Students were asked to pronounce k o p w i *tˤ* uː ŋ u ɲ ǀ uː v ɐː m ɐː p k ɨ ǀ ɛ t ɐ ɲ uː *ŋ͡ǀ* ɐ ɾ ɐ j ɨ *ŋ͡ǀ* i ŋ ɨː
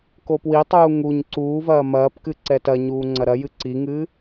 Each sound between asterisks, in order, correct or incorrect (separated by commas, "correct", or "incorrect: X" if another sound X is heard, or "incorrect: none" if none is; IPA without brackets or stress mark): correct, correct, incorrect: ǀ